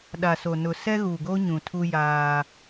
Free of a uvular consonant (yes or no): yes